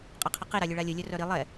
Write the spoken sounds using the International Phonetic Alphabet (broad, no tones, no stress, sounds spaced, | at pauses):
qʼ a qʰ ə q i ɾ a lʲ ɵ ɭ a lʲ ə lʲ œ r œ ɾ i lˠ ɛ